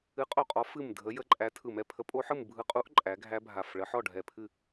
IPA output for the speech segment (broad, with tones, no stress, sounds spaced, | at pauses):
ɨ˨˦ qʼ o˧˩ qʼ ɔ˨˦ f ɨ˧˩ m dʱ ə˨˦ j ə˨˦ ǃʼ æ˨˦ tʰ ɯ˧˩ m ɛ˦˥ pʰ ə˨˦ pʼ o˦˥ ħ ɯ˥˨ m bʱ ɯ˧˩ qʼ u˦˥ ʔ ǃʼ æ˨˦ ɡʱ æ˦˥ bʱ a˧˩ f ɭ ə˨˦ ħ ɔ˥˨ ɖʱ ɛ˧˩ pʰ ɨ˥˨